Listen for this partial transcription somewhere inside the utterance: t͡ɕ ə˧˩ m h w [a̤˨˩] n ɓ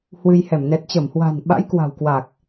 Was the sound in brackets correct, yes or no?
yes